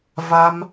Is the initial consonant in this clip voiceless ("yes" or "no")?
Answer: no